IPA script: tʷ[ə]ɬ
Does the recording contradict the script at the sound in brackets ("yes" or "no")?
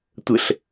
no